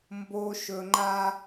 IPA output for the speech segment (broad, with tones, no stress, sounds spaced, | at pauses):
m b o˧ ʃ ɵ˧ ŋ͡ǃ a˦